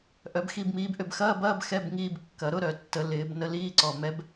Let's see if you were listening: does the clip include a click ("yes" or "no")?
yes